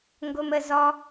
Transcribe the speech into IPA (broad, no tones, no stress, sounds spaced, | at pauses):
ŋ ɡ o m ə z ɔ